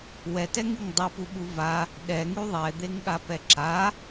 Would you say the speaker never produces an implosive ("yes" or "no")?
no